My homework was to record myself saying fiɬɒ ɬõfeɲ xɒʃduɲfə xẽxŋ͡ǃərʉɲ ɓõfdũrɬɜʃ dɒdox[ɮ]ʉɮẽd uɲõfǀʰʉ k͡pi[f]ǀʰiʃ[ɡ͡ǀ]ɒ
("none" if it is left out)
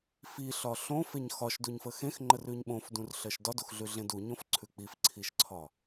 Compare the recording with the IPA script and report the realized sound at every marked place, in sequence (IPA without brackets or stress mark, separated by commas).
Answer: ɮ, f, ǀʰ